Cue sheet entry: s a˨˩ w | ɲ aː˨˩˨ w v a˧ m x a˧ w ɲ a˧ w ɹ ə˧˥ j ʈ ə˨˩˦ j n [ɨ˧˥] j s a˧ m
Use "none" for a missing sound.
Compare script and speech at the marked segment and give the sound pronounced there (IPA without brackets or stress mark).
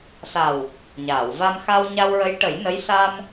ə˧˥